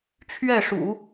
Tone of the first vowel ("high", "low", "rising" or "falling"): falling